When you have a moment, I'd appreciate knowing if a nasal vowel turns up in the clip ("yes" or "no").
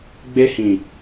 yes